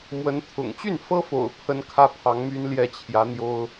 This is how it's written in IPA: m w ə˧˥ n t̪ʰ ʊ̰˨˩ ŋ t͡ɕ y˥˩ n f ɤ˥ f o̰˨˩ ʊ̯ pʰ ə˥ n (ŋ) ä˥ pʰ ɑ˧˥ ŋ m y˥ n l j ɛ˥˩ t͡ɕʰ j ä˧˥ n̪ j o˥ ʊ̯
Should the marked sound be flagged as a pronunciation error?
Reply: yes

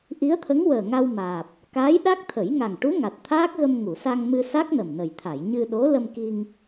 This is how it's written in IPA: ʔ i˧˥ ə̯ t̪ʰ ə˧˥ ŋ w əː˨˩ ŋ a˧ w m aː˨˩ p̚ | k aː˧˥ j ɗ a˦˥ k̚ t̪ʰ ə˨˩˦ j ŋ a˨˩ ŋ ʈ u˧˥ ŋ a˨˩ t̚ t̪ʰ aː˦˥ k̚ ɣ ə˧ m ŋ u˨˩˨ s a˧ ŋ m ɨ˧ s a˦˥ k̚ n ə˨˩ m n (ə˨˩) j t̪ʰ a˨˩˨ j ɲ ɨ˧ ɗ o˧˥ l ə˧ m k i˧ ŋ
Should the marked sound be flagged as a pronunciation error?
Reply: no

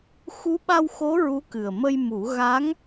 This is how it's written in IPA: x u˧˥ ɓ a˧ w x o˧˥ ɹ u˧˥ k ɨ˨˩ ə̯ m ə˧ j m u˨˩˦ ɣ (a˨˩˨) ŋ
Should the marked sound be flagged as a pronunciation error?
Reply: yes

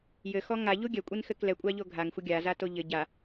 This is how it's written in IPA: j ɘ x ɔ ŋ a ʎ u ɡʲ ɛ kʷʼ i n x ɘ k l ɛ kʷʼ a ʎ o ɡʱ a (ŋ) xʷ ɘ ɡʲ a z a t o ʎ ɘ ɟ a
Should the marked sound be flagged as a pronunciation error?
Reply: no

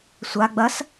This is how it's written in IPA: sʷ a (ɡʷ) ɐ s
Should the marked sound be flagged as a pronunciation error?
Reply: yes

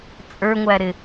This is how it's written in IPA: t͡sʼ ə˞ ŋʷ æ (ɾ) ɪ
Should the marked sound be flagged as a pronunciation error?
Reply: no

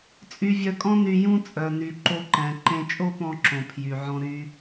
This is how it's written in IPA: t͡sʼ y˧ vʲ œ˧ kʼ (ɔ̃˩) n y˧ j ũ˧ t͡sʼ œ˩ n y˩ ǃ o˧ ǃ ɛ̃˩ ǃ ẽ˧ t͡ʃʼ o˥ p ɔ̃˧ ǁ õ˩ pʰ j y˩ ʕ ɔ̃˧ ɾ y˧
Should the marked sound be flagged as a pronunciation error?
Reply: yes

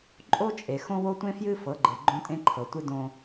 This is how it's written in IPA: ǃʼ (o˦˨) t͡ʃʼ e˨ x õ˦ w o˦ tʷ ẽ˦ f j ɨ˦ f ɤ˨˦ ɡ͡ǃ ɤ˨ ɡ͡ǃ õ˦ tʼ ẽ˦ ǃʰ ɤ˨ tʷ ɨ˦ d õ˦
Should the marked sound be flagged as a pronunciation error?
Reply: yes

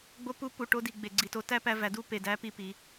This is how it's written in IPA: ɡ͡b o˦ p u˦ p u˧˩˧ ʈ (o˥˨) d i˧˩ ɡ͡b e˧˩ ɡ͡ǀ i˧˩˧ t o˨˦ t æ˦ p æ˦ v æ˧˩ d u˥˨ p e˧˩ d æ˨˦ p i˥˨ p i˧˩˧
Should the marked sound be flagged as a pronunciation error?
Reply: yes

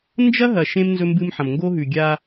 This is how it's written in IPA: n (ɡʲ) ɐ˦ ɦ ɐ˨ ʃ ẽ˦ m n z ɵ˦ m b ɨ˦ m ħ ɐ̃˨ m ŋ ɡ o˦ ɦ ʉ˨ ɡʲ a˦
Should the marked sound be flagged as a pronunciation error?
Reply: yes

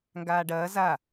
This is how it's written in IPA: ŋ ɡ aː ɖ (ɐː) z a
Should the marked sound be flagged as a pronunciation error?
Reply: no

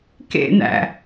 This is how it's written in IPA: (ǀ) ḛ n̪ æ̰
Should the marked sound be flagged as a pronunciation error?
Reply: yes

